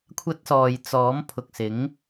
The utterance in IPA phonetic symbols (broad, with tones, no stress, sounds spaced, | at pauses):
kʷʰ ɐ˧ t̚ s ɔː˨ j t͡s ɔː˨˥ m pʰ ʊ˨ k̚ s ɪ˨˥ ŋ